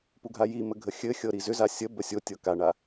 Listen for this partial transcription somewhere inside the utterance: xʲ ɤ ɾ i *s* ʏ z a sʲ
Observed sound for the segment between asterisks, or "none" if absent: z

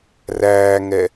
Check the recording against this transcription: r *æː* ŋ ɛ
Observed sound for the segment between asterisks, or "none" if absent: æː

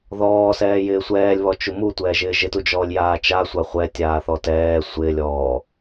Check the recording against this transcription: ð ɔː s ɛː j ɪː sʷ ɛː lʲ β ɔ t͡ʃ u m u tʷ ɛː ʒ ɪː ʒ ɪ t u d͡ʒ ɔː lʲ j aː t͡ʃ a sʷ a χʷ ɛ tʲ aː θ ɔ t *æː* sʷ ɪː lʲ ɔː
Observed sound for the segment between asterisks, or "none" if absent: ɛː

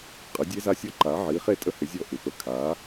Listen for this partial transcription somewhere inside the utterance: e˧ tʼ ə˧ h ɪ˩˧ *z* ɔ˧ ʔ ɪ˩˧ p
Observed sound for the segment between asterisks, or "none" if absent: zʲ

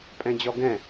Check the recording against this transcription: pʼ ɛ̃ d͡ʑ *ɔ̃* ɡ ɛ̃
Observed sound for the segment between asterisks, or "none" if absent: ɔ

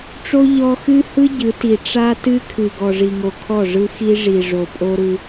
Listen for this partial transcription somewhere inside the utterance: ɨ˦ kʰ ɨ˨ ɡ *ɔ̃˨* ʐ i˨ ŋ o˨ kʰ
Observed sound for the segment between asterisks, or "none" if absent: ɔ˨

